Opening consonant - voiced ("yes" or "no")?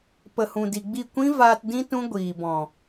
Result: no